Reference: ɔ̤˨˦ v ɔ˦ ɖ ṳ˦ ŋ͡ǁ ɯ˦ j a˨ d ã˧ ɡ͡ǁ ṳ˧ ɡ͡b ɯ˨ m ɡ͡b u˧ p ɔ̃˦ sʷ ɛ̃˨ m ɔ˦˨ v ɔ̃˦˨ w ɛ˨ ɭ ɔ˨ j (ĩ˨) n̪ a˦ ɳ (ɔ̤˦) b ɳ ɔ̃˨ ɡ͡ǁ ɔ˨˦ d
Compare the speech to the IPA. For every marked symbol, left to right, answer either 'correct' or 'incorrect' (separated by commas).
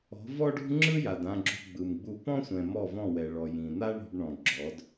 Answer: correct, incorrect